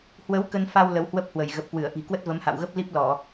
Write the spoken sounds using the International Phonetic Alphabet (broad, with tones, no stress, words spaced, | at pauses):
hwə˨˦w kə˧nfa˧w lə˨˦whwə˦˥p̚hwə˧˩j ɣə˨˩p̚kwɨ˧˩ə̯ʔi̤˨˩ kwə˦˥t̚və˨˦mha̰˧˨w ɣə˦˥p̚li˦˥p̚ lɔ˧˩˨